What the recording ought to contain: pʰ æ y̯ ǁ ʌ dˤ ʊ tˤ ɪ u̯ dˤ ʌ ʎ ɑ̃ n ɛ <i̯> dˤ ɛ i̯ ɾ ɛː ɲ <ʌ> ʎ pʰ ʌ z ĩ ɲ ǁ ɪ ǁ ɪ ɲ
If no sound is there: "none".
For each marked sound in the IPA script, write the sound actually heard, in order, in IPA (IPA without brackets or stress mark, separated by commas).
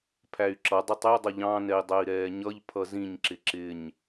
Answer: i̯, ʌ